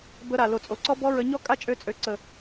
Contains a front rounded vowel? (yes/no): yes